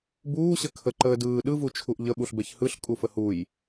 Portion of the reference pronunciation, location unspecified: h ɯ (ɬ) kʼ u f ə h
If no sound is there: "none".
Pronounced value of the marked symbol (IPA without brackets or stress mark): ɬ